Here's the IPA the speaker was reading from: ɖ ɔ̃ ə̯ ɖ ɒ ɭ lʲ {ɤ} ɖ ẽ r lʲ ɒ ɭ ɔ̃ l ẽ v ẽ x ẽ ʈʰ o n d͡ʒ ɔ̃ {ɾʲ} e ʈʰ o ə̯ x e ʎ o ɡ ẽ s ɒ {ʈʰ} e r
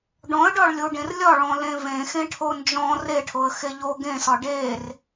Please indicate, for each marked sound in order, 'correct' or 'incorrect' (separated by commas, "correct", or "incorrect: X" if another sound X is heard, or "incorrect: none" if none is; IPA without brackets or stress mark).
incorrect: o, incorrect: r, incorrect: ɖ